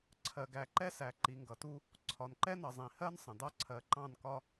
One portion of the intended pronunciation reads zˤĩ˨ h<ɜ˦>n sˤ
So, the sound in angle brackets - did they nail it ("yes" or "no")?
yes